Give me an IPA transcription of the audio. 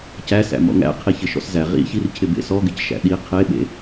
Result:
c æ s æ̰ m ɔ̰ ŋ æ̰ qʰ i ç ɪ ʃ ɔ̰ s z æ ʁ ḭ ç i r cʰ ɪ b ḛ s ɔ ɡ ɪ c ʃ æ̰ ɗ i qʰ e ɓ ḛ

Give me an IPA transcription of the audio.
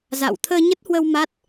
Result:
z a̰˧˨ w t̪ʰ əː˧ ɲ ə˦˥ t̚ h w ə˧ w m a˦˥ t̚

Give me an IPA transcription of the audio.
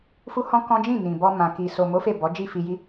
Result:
f u˦ h ɔ̃˦ k ɔ̃˦ d͡ʒ ĩ˦˨ n ĩ˨ b ɔ˧ m ã˨ k i˨ s o˨ m o˨˦ f e˦˨ b ɔ˨˦ d͡ʒ i˦˨ f i˧ j i˦

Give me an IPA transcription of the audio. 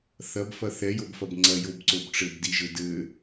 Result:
θ ɐ b f ɐ θ ɛ j o b f ɐ b ŋ͡ǀ ɐ j o b ǀ o b ʈ͡ʂ ɘ b d i ʒ ɘ d ɘ

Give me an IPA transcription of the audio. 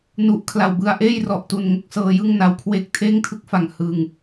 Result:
n u˨˩ ʔ kʰ l a˨˩ w b ɯ˧ a̯ ʔ eː˥˩ j r ɔ˨˩ ʔ t u˨˩ n ŋ o˥˩ k̚ s ɤː˧ j ɯ˥˩ ŋ n a˧ w kʰ w eː˥˩ k̚ tʰ eː˥˩ ŋ tʰ ɯ˥˩ k̚ f a˨˩ ŋ h ɯ˧ ŋ

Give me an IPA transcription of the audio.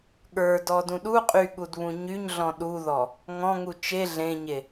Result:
ɠ ə˞ d ɔ d ũ ɗ u qʼ y ɠ u d β ũ ɲ y ɲ ɮ ɔ̃ ɗ u ð ɔ | ŋ ɔ̃ ŋ u t͡ʃ e ɮ ẽ ɲ e

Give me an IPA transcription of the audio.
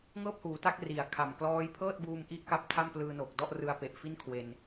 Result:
ŋ ɤː˥˩ p̚ h uː˩˦ t a˦˥ k̚ r i˨˩ a̯ kʰ a˨˩ m k l ɔː˦˥ j pʰ ɤː˥˩ t̚ b uː˧ m ʔ i˥˩ ʔ k a˦˥ p̚ tʰ a˥˩ m p l ɯː˧ n o˨˩ k̚ d ɔ˥˩ ʔ r ɯ˧ a̯ p e˨˩ ʔ f i˥˩ n kʰ w e˧ n

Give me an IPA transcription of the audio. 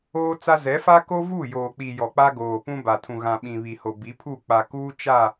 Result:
oː˦ t͡s a˦ z ɛ˨˦ f a˦ k o˦ v u˦˨ j oː˨ k͡p i˨ j ɔ˨ k͡p a˦ ɡ oː˨ p ũ˦ b a˨ tʰ ũ˨ ɣ ã˨ ɓ ĩ˨ β i˨ h o˨ b i˨˦ pʰ u˦˨ k͡p a˨ k uː˦ t͡ʃ a˦˨

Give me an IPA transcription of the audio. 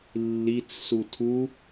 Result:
lː i t͡s s u tʰ u

